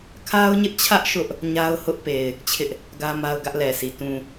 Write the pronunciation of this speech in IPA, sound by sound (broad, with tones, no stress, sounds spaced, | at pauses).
kʰ a˦ ʊ̯ ɲ ɪ˦ ʔ t͡ɕʰ ä˦ ʔ ʃ ʊ˦ ʔ | ɲ a˦ ʊ̯ h ʊ˦ ʔ p e˨ ɪ̯ | t͡ɕʰ ɪ˦ ʔ | ɡ ä˦ m a˦ ʊ̯ ɡ ä˦ ʔ l ɛ˨ s i˨ t ũ˨